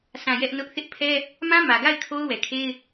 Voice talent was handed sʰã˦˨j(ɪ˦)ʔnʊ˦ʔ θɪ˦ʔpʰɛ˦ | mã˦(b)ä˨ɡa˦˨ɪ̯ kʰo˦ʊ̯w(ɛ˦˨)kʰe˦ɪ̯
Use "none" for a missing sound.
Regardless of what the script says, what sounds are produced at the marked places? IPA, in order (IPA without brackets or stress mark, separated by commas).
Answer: ɛ˦, m, ɛ˨